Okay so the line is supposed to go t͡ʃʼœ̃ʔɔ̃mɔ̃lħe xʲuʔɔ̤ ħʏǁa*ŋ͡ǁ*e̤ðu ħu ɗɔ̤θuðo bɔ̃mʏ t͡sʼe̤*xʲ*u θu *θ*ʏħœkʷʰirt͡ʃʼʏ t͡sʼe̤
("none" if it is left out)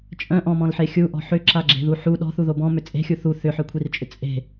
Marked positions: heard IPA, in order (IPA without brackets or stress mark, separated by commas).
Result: ɡ͡ǁ, xʲ, θ